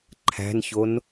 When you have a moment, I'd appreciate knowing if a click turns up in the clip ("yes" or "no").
yes